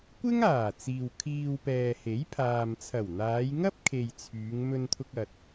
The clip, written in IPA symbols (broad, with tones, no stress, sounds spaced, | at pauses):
kʷ ɪ˥ ŋ aː˨˩ t͡s iː˨ w kʰ iː˧ w p ɛː˨ h e˨˥ j pʰ aː˨ m t͡sʰ ɐ˨˩ w n̪ aː˨˧ j ŋ ɐ˥ p̚ kʰ e˨ j t͡sʰ yː˨˧ ŋ m ɵ˧ n t̪ʰ ʊ˧ k̚ ɐ˨ t̚